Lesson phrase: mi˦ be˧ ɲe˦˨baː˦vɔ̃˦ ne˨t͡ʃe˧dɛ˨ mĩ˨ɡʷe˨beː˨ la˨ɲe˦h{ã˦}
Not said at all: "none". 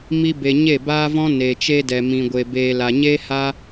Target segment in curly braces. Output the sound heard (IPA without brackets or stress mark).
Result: a˦